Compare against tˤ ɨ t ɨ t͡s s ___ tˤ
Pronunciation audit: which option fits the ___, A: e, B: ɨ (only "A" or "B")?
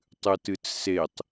A